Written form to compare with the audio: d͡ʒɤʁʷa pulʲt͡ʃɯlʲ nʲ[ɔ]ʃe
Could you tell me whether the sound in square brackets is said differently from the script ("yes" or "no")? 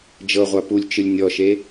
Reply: no